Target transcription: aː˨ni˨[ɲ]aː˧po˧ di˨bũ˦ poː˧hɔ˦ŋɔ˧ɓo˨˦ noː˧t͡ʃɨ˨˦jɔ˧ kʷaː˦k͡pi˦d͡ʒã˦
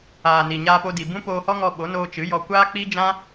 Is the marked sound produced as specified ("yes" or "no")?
yes